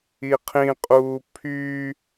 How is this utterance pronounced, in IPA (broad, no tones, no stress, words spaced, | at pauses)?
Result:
iqʰĩqʼuː pʰy